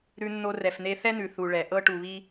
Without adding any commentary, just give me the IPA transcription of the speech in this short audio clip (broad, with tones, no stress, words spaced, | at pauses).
ɾʉ˧nːo˧ rɛ˨fne˧θɛ˦nʉ˨ θu˨ɭɛ˨ ʔɤ˧ʈu˨βi˧